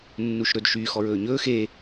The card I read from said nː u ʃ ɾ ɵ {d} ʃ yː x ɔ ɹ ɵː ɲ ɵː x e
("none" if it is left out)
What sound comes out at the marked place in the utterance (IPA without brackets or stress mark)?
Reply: d